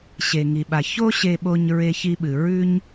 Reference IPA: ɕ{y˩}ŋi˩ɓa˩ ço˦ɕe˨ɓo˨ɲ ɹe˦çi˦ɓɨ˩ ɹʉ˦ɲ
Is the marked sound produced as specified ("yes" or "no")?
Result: no